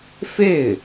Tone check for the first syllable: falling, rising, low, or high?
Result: falling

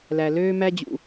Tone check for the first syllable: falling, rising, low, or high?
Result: low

